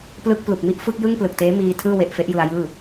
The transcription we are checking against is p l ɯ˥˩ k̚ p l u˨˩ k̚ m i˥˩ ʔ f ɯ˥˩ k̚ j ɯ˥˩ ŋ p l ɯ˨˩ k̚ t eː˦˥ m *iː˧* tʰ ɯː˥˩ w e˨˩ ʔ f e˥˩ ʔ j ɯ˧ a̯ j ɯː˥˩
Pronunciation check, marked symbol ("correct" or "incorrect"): correct